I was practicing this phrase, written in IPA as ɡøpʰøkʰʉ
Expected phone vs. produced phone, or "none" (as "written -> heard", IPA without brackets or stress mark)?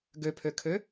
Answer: ʉ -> ø